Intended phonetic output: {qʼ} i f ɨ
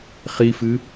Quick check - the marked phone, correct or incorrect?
incorrect